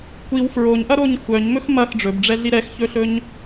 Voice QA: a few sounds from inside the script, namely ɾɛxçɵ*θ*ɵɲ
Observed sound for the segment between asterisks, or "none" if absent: ɬ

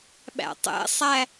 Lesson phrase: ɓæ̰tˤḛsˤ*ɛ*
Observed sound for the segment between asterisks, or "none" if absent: æ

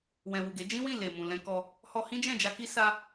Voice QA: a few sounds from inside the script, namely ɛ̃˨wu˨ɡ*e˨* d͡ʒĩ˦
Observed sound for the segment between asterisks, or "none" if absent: e˨˦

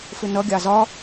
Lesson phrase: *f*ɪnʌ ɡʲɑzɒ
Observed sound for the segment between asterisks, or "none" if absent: f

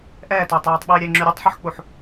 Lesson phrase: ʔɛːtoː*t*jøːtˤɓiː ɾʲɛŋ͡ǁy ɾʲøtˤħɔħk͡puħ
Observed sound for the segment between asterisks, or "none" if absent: tˤ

